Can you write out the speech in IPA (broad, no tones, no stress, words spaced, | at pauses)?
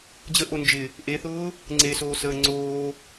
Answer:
d͡ʑəʔo nd͡ʒɪ | ʔeθʊː | ŋ͡ǀesoːsəː ŋ͡ǀoː